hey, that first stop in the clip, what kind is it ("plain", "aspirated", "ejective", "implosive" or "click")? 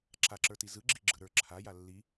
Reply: click